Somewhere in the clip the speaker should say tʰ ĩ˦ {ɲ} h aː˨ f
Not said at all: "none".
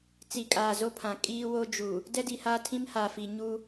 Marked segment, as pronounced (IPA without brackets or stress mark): m